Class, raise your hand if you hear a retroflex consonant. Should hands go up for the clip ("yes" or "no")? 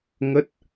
no